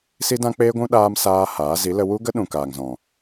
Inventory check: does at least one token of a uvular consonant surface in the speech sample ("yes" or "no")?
no